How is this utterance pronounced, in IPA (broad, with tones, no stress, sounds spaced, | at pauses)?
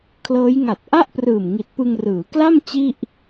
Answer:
kʰ l ɤː˦˥ j ŋ a˨˩ t̚ ʔ a˥˩ ʔ p r ɯː˨˩ m ŋ i˨˩ t̚ p ɯ˧ ŋ r ɯː˩˦ k l a˥˩ m t͡ɕ i˥˩ ʔ